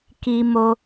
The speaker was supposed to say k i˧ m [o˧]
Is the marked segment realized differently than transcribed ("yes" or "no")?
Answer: no